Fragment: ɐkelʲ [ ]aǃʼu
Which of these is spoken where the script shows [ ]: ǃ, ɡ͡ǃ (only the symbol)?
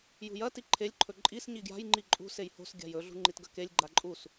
ɡ͡ǃ